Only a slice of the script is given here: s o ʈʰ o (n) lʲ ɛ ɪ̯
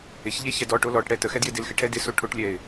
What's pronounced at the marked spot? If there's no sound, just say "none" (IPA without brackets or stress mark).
ʈ